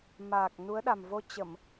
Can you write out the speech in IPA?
m aː˨˩ k̚ n u˨˦ ə̯ ɗ a˨˩ m v o˧ t͡ɕ ə˧˩˨ m

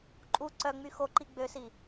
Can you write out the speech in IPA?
ǃʼ u ǀ œ ŋ͡m y x o ǃ i ɡ͡b ø s i

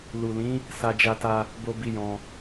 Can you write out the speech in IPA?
l u˨ l ĩ˨˦ | s a˧ d͡ʒ a˧ t a˧ | b o˦ b i˦ j ɔ̃˧

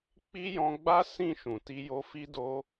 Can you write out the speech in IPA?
k͡p i˦ j ɔ̃˧ ɡ͡b a˦ s ĩ˦˨ ʃ ũ˨ t i˧ j o˧ f i˦ d o˦

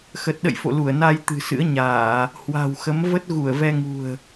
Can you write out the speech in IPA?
x ə˨˩ t̚ ɗ ə̰˧˨ j f o̰˧˨ l u˧˩ ə̯ n a˧ j t̪ ɨ̤˨˩ s ɨ̰˧˥ ə̯ ɲ aː˧˩˨ | h w a̤˨˩ w x ə˨˦ m v ə˦˥ t̚ ɣ u˧˩ ə̯ v ɛ˧ ŋ ṳ˨˩ ə̯

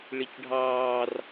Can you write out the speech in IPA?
ɭ i c ɖʱ ɑː r

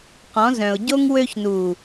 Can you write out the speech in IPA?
q ɔ̃˨˦ z œ̃˨ ʊ̯ ɟ o˦ ŋ w ø˧ ç n u˨

